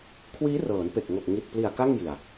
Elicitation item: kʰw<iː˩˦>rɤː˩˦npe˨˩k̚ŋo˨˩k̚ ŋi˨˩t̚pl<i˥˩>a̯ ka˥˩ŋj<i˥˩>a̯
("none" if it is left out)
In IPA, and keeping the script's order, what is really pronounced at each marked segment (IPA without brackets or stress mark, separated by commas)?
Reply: iː˦˥, i˨˩, i˨˩